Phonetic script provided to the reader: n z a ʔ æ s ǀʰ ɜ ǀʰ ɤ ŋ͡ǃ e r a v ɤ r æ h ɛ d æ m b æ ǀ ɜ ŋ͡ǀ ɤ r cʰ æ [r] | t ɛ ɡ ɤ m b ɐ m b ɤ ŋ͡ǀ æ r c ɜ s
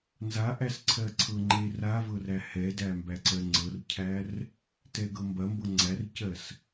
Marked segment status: correct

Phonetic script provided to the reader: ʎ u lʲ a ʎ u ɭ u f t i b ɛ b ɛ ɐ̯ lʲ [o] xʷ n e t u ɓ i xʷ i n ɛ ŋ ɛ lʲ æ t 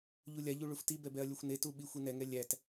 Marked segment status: correct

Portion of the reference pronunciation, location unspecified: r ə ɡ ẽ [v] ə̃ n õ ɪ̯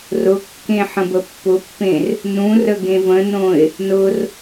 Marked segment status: correct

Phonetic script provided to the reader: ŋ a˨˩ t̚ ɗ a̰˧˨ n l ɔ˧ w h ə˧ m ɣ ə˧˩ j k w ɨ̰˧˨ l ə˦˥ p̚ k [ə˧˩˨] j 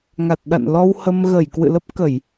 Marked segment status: correct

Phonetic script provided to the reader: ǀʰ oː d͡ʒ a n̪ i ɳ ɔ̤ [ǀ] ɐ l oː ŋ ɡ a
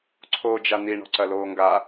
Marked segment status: correct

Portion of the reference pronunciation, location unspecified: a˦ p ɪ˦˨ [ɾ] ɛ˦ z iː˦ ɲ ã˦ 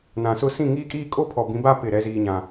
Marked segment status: correct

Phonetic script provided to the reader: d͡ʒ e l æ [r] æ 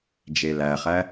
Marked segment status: incorrect: χ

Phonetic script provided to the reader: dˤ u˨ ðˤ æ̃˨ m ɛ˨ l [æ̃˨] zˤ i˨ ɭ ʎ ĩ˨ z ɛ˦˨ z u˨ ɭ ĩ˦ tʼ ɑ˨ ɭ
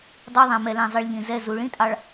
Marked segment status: correct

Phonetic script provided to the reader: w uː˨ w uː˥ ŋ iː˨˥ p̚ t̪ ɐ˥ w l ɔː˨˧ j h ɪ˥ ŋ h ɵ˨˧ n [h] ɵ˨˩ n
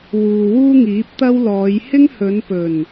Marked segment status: incorrect: p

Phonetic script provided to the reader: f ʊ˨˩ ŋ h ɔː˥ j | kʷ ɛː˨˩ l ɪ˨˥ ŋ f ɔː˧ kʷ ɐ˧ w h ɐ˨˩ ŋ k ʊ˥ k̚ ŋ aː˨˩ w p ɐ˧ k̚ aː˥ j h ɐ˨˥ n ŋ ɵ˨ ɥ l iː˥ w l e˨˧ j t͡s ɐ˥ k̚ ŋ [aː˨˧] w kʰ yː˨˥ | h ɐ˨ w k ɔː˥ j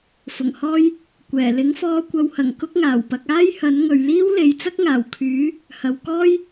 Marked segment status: incorrect: aː˨˩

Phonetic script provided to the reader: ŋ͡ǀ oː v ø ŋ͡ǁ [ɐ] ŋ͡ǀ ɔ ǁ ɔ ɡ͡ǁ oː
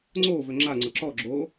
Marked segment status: incorrect: a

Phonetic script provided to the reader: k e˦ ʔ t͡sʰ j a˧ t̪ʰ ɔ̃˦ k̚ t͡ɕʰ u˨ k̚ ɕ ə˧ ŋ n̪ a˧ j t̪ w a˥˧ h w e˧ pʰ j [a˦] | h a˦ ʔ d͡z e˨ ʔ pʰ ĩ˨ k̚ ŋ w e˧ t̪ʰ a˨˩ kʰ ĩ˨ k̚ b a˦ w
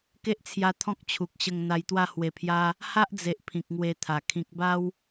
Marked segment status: correct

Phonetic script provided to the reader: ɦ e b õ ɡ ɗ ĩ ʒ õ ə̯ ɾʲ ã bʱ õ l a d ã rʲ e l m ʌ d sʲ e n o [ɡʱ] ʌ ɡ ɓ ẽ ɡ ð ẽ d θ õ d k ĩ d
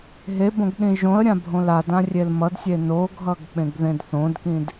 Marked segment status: correct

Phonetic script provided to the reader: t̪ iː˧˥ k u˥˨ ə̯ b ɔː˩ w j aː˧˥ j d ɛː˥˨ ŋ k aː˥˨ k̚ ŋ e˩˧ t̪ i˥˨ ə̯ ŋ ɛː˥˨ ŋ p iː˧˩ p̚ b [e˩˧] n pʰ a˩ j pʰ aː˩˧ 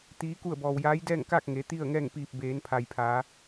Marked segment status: incorrect: eː˩˧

